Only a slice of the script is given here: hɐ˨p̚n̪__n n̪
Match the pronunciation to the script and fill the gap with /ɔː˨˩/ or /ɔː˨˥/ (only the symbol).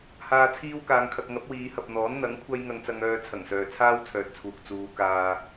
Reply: ɔː˨˥